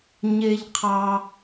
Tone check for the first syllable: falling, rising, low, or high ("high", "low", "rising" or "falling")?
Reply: low